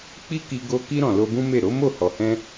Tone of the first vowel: high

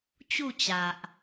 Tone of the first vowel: falling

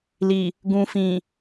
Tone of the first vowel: low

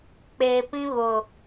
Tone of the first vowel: low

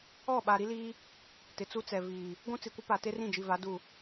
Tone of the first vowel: falling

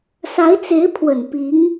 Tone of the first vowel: rising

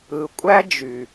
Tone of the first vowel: low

